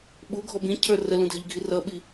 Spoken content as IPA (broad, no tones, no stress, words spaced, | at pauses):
ɓuɡʱɔb ĩcʰə˞ rəlũdʱɪʎɡʱi rʌɓi